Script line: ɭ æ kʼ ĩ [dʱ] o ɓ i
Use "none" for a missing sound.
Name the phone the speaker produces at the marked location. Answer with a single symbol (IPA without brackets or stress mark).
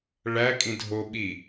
dʱ